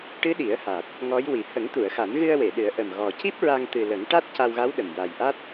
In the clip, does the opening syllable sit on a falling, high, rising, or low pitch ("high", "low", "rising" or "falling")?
rising